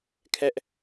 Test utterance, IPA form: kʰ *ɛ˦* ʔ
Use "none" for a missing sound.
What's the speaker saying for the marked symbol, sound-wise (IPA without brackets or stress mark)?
ɛ˦